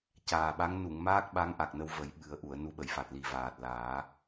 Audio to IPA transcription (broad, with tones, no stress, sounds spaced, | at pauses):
c aː˨˩ ɓ a˧˥ ŋ n u˨˩˨ ŋ m aː˦˥ k̚ ɓ a˧˥ ŋ ʔ a˨˩ k̚ n ə˧ w v ə˨˩˦ j ɓ ɨ˨˩˦ ə̯ ʔ u˨˩˨ ə̯ n u˧˥ ɓ ə˨˩˨ j f a˨˩ t̚ l i˨˩ v aː˨˩ t̚ l aː˨˩˦